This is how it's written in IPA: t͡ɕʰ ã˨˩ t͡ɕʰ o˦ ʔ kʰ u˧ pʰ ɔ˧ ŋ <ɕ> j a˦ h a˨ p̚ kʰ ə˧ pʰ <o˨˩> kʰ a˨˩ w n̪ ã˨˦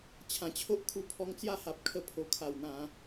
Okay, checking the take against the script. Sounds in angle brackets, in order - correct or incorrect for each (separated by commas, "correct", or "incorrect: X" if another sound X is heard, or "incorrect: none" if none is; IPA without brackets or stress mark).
incorrect: t͡s, correct